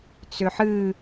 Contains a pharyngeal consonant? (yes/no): yes